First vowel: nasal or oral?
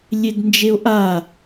oral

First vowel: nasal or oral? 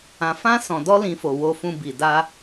nasal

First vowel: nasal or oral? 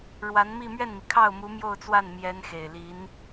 oral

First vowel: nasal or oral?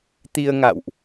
oral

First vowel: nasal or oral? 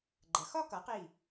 oral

